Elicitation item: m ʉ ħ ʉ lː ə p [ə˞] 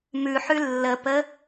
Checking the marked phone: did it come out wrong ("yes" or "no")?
yes